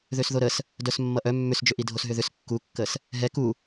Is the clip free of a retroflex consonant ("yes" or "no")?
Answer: yes